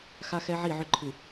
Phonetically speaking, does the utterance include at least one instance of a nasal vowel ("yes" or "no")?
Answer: no